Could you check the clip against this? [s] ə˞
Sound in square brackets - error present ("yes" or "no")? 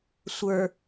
yes